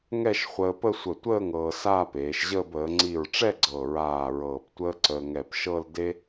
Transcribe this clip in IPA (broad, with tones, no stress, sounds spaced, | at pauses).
ŋ ɛ˥˧ ʃ χʷ əː˧ p ə˥˧ sʷ ə˧˩ tʷ əː˥˧ ŋ ɤː˧ s aː˥˧ p eː˩˧ ʃ ʑ əː˥˧ b əː˩˧ ŋ͡ǀ i˧˩ ɹ ʈ͡ʂ ɛ˥˧ ɡ͡ǀ ɤ˧˩ ɹ aː˧˩ ɹ ɤː˧˩ p tʷ əː˥ ǀ əː˧ ŋ ɛ˧˩ p ʃ ɤ˥˧ l d e˥